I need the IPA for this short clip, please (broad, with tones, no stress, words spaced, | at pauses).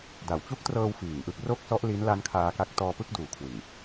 da˩˦wt͡ɕu˦˥k̚trɤː˧w fiː˨˩ŋʔɯ˥˩k̚ ro˥˩k̚sɔ˦˥ʔli˦˥nla˦˥n kʰaː˧ka˦˥k̚ tɔː˧pɯ˥˩k̚ duː˨˩kʰwɯ˨˩ŋ